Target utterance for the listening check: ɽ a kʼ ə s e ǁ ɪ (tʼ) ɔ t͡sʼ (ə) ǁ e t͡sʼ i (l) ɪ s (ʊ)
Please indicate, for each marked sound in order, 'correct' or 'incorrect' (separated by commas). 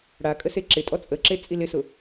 correct, correct, correct, correct